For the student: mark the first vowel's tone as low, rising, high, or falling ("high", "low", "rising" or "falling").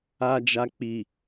low